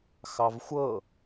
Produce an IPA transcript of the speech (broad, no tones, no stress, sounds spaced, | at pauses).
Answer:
x ɑ v xʷ ɤ